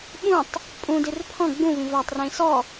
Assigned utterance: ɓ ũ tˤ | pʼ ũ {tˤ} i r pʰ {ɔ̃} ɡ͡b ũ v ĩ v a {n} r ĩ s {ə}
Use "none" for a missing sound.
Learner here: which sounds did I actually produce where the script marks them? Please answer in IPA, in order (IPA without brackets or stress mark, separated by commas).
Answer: d, ɔ̃, tˤ, ɔ